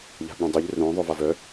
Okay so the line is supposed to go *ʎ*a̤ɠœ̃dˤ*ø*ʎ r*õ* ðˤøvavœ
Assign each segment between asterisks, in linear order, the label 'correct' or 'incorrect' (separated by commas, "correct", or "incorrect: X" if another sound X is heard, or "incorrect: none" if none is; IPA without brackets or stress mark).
correct, correct, correct